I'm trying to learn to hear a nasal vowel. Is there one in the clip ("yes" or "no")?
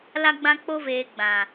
yes